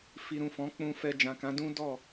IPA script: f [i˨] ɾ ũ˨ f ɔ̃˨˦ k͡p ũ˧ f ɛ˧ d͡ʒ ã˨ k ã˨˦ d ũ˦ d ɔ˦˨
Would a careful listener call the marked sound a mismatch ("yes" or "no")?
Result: no